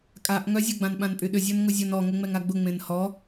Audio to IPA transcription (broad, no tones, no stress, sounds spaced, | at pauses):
kʼ a ʔ ŋ œ zʲ ʊ ɡ͡b ã n ɓ ã n pʼ y ɗ ʏ zʲ ɔ n ŋ ʊ zʲ ɔ n ɔ ŋ ʊ ŋ͡m ɛ ŋ a ɡ͡b ʊ ŋ͡m ẽ n h ɔ